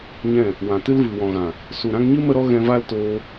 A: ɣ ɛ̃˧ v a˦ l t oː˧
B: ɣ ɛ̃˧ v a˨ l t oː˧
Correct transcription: A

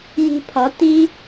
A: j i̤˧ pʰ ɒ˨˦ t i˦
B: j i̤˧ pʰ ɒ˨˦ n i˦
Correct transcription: A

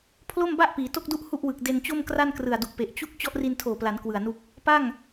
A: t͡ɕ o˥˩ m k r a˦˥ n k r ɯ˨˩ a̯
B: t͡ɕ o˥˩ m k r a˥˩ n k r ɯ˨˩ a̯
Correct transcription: B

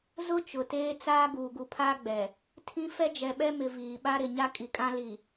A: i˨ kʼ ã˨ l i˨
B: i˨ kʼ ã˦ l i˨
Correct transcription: B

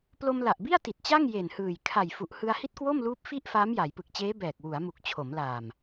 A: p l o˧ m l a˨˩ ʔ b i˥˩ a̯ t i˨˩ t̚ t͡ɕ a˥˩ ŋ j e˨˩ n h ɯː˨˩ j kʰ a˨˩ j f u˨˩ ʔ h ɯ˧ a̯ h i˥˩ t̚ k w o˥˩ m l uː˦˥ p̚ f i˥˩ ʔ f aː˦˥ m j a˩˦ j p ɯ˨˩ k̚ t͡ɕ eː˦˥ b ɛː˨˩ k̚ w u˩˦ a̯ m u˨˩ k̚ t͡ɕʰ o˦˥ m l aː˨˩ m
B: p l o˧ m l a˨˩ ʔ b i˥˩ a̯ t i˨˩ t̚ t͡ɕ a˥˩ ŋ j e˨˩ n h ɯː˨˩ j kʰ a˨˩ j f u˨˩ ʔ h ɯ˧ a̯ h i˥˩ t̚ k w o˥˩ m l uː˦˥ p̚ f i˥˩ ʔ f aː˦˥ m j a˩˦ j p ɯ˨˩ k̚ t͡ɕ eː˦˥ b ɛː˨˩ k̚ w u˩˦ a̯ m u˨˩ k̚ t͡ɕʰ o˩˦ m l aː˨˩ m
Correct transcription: B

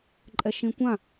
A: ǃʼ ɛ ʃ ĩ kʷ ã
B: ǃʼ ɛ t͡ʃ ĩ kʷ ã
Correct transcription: A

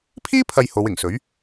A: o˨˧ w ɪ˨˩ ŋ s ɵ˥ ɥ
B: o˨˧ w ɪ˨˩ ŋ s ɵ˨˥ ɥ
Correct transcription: B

